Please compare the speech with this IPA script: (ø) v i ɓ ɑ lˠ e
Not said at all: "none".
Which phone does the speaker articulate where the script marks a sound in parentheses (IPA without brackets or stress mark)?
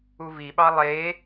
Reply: u